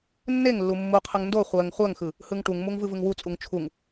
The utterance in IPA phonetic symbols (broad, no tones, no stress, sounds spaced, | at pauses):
nː e ŋ lː u mː u qʰ ɯ ŋ n d o χʷ ɜ ŋ χʷ ɜ ŋ x ɯ | h ɯ ŋ ʈ u ŋ m u ŋ v ɯ v ɯ ŋ w u t͡sʼ u ŋ t͡ʃʰ u ŋ